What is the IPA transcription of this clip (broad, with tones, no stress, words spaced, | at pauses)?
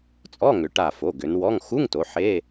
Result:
t͡sʼɔ˧˥˧ŋʏ˩˧ ʈa˧˩fo˩˧˩ɡʏ˩˧nwɔ˧˥˧ŋ xu˧˥˧ŋto˩˧ ħe˧˥˧